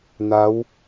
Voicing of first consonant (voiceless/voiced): voiced